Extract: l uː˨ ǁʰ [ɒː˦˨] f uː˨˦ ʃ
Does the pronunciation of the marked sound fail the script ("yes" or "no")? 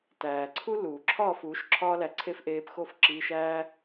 no